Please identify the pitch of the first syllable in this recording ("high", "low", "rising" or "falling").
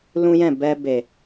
high